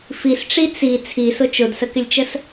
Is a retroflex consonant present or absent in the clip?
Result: present